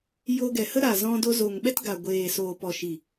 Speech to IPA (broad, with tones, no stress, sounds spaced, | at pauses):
j o˧ ɡ ɛ˨ h ə˦ ɾ a˨ z ɔ̃˧ d o˧ z o˨ ŋ ɓ ɛ˦ t ɡ a˨ ɡʷ eː˨ s oː˨ p ɔ˨ ʃ i˨